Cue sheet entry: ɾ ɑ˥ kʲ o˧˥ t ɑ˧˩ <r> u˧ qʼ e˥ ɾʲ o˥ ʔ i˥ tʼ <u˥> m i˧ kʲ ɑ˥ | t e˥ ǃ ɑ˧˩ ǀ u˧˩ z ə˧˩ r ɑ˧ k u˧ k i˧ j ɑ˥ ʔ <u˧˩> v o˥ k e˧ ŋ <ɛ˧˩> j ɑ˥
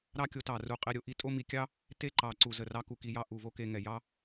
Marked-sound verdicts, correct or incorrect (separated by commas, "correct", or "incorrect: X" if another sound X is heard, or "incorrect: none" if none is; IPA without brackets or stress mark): correct, incorrect: o˥, correct, correct